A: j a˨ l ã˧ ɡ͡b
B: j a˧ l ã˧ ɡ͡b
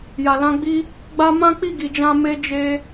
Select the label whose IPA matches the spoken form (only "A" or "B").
A